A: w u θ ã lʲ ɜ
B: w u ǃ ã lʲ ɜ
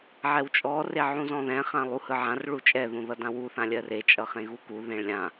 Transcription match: A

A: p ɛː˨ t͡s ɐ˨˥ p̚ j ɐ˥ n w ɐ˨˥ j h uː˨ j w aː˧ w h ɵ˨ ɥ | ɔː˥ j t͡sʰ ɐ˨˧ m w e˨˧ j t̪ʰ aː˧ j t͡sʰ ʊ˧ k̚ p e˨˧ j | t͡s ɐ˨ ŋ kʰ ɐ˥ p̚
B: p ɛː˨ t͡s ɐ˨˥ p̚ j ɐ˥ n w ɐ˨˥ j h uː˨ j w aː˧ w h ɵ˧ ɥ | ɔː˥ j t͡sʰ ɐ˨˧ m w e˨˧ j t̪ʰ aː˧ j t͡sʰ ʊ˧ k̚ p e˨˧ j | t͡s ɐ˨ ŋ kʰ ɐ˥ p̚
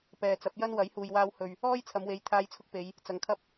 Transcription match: A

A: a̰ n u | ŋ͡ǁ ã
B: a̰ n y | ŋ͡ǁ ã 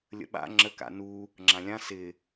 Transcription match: A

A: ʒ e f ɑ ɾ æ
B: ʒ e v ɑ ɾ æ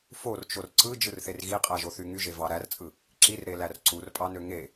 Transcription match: B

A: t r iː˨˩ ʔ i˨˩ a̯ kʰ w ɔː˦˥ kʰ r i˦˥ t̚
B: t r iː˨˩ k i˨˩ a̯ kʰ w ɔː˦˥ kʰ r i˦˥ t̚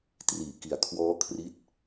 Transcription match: B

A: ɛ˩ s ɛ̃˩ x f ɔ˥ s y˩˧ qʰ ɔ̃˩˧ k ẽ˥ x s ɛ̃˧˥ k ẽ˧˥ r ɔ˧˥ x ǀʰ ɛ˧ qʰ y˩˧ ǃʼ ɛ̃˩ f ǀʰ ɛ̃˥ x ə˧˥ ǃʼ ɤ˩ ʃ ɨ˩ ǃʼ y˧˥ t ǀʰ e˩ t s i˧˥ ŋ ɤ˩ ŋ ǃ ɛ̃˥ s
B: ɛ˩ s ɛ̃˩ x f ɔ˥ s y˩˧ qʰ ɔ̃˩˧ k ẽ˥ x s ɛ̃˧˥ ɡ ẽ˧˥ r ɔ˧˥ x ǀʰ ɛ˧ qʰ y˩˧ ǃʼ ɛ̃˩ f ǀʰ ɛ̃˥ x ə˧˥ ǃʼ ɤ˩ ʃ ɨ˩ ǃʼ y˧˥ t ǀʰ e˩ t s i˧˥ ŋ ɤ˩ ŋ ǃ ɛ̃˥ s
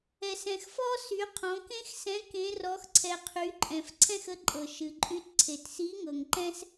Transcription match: A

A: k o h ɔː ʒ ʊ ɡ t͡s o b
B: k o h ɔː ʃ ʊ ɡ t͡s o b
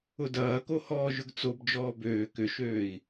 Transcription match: A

